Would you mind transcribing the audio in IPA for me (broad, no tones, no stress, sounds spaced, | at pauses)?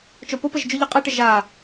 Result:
t͡ʃ o p o p ɘ ʒ d͡ʒ u ʎ ɨ qʼ e ʈ ɘ ʒ a